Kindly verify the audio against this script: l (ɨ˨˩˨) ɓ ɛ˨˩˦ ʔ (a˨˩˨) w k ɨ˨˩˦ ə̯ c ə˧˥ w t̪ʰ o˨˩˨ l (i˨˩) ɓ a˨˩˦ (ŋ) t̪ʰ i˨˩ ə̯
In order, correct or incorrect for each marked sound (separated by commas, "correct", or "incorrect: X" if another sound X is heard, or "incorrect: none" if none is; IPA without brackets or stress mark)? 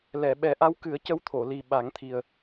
incorrect: ɛ˨˩˨, incorrect: a˧˥, correct, correct